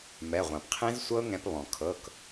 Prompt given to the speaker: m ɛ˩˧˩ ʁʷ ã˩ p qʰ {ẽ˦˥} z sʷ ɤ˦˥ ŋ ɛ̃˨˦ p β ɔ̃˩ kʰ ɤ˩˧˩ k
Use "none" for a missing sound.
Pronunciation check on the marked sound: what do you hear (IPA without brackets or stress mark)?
ẽ˦˥